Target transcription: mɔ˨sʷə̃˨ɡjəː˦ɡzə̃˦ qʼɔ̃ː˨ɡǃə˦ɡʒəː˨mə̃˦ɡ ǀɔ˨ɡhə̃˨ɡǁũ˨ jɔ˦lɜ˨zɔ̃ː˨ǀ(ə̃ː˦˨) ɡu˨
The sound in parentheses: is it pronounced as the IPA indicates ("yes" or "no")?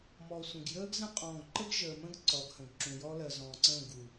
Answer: yes